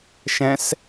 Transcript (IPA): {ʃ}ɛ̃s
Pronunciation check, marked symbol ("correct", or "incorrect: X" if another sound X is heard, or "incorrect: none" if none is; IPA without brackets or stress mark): correct